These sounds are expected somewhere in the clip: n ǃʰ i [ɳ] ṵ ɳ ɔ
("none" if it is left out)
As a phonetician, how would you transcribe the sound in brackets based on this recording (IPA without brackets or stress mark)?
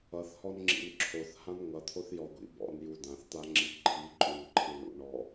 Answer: ɳ